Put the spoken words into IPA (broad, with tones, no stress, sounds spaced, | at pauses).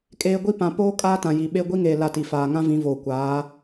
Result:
kʼ eː˦ ɡʷ i˦ p ã˨˦ p oː˦ kʼ aː˦ t ã˨ j i˨ ɓ e˦ ɡʷ i˦ ŋ eː˨ l a˦˨ t i˨ f aː˨ ŋ ã˦ v ĩ˨˦ v oː˨ kʷ aː˨˦